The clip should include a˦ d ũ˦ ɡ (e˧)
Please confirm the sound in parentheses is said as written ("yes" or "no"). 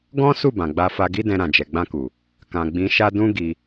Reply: no